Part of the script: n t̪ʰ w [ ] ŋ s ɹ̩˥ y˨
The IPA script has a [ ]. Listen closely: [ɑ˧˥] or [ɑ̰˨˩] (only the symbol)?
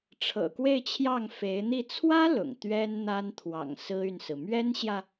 ɑ̰˨˩